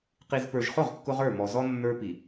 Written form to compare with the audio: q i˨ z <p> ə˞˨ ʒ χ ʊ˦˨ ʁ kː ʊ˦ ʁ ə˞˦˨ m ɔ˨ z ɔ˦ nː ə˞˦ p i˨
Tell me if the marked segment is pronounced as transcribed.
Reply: yes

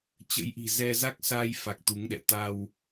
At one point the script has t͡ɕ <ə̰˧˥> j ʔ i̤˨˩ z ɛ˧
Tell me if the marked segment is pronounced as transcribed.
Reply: yes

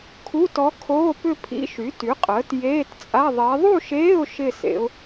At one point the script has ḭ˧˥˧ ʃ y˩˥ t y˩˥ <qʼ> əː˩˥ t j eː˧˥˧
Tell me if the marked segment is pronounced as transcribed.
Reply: yes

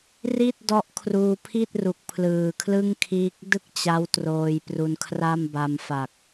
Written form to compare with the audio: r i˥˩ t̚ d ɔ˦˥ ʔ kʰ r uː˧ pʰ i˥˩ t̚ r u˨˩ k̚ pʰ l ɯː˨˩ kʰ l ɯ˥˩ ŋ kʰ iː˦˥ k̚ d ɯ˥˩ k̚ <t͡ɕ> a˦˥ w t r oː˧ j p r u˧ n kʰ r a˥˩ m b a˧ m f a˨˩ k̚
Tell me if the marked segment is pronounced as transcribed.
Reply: yes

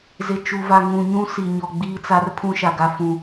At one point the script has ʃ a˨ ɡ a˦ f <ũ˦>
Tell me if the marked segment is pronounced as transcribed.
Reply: yes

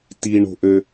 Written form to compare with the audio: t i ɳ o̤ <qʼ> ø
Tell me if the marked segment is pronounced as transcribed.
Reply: no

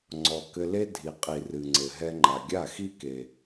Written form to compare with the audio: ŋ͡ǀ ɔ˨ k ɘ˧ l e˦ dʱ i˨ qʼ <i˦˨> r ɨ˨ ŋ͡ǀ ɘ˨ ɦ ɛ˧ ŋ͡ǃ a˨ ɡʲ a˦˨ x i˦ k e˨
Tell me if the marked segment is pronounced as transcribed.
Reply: no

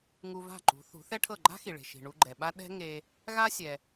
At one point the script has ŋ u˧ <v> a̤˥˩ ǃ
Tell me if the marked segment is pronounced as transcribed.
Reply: yes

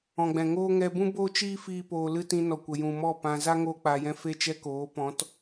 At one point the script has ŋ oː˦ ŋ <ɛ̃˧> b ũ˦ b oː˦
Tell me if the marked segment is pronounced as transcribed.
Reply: no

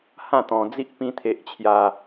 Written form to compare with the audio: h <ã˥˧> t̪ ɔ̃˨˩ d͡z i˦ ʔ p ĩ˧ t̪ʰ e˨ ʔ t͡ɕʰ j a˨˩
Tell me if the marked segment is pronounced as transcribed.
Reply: yes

